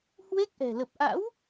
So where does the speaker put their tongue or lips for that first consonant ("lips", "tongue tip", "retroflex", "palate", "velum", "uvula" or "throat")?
throat